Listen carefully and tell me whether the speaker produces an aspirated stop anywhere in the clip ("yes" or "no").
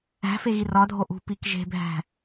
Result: no